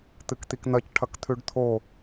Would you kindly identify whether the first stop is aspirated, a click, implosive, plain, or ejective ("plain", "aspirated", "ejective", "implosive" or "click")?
plain